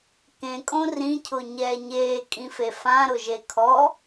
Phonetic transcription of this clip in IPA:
kẽkʼõ rĩcʰʊ ɲɛːɲeː kʼĩfefã ɾʊʒekʰɔ

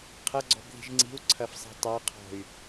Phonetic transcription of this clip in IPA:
qʰɐɡ͡ǀɔ̤bði̤ʒ ŋ͡ǀi̤u̯ǀʰɐfsˤi̤ tˤaqʰɔ̤y̯

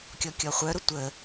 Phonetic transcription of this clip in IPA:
kʲɔkʲɔχʷœɾʊ tʷə

